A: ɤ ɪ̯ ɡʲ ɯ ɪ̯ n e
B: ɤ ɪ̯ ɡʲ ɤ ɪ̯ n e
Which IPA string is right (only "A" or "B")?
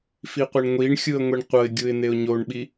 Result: A